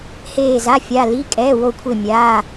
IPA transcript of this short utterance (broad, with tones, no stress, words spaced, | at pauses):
heː˦˨za˧˥˧ fʲa˧˥˧ li˧˥˧ kʼɛː˧˥˧ wo˦˨kʷʰe˦˨ mʲaː˧˥˧